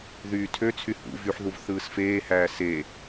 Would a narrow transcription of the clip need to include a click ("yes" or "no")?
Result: no